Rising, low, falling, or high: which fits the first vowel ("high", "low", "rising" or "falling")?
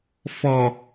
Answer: low